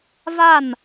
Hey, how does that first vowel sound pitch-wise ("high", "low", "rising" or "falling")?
falling